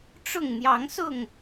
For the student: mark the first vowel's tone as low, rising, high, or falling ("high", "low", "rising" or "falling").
falling